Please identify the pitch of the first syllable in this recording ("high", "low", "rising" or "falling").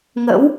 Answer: rising